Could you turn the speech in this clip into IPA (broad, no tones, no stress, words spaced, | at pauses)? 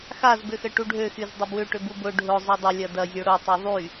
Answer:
xazbʏxə ʈuɖʱøxyz dˤɪbwʏ ʈʏbubʊ ɖʱʊ zˤødˤʏ lʲɐdɐ zʲoɽʊtˤy ðˤy